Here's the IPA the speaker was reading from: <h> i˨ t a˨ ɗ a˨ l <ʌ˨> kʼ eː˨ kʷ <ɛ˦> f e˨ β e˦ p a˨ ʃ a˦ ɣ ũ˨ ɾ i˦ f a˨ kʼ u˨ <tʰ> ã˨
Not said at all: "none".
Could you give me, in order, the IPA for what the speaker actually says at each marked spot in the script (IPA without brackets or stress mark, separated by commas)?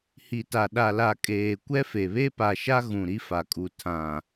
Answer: h, a˨, ɛ˦, tʰ